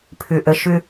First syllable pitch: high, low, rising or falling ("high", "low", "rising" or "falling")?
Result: low